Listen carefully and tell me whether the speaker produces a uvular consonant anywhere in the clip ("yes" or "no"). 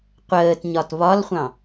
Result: yes